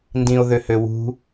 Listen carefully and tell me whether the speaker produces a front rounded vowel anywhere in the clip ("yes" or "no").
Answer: yes